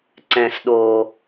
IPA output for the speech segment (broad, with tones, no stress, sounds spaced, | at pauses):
ǀ ɛ̃˧ s ɗ o˧